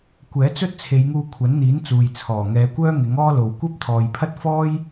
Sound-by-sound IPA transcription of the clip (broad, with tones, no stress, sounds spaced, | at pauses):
kʷ ɛː˨˥ t͡s ɵ˥ t̚ t͡sʰ e˨˧ j ŋ uː˧ kʷʰ ɐ˨˥ n n̪ iː˨˥ n t͡s uː˨ j t͡sʰ ɔː˨˩ ŋ ɛː˨˧ kʷ œː˥ ŋ ɪ˨˥ ŋ ɔː˥ l o˨ w kʷ ɐ˥ p̚ t̪ʰ ɔː˨ j pʰ ɐ˥ t̚ f ɔː˥ j